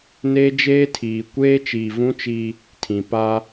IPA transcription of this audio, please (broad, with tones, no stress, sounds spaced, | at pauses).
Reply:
n eː˦ d͡ʒ eː˦ tʰ iː˨ kʷ eː˦ t͡ʃ i˨ v ũ˦ t͡ʃ i˦ | tʰ ĩ˨ p a˦